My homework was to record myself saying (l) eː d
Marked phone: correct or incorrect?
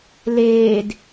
correct